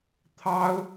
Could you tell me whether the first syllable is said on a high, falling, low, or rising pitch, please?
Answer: high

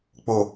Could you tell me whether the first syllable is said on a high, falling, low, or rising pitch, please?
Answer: low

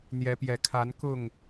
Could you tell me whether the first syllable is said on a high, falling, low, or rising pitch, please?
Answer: rising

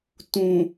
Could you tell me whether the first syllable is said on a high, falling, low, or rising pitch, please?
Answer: low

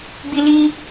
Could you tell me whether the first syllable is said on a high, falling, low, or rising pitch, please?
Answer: high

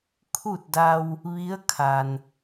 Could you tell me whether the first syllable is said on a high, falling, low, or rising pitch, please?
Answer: falling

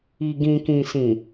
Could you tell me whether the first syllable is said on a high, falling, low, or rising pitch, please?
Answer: low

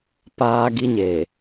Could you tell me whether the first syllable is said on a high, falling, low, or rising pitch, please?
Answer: high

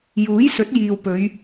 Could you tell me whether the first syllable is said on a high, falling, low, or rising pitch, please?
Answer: rising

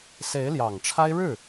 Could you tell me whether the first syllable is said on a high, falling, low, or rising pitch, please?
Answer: rising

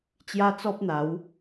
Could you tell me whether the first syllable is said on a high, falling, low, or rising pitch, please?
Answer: high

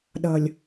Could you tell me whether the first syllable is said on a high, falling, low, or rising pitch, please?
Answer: low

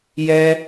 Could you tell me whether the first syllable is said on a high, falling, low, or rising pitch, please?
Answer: high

